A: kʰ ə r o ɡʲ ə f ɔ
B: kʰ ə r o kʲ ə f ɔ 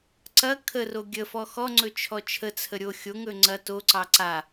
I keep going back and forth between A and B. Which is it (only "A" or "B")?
A